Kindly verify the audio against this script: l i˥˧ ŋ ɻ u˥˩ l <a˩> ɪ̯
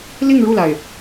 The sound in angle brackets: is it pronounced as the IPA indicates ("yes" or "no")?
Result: yes